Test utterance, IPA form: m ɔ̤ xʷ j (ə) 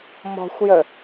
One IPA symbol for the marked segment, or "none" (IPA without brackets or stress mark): ə